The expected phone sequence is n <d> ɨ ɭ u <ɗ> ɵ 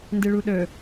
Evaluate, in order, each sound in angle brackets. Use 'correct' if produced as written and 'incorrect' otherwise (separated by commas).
correct, correct